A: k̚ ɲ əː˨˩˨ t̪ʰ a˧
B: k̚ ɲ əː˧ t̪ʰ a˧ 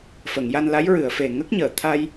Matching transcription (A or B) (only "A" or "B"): A